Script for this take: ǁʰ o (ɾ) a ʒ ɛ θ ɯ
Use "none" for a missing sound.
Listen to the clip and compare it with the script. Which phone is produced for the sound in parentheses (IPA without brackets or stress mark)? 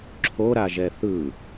ɾ